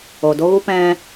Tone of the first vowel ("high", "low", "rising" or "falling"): low